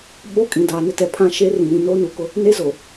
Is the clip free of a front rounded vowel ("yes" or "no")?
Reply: yes